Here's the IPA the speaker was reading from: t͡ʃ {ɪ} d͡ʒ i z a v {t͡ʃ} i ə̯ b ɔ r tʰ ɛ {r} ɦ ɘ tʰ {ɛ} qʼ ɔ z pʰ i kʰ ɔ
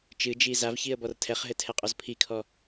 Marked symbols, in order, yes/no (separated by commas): no, no, no, yes